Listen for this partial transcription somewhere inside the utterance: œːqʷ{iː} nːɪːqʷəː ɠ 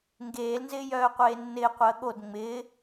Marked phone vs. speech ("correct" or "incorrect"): incorrect